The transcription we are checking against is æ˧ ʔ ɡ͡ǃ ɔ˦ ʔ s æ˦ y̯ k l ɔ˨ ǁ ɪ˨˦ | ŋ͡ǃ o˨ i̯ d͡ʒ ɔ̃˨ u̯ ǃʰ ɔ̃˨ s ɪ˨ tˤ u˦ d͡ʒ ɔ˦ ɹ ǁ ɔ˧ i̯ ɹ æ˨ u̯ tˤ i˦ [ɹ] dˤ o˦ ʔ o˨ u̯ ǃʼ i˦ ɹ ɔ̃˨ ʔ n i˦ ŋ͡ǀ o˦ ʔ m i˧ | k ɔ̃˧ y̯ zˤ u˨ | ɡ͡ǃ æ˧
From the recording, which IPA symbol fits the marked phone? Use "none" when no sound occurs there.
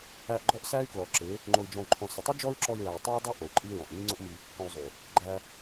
ɹ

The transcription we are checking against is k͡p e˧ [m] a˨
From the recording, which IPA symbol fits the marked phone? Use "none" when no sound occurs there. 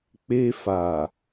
f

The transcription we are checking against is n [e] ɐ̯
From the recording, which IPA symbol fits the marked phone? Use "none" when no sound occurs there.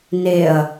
e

